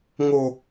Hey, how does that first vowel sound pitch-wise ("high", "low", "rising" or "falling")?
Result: high